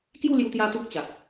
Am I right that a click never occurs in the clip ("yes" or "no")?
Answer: yes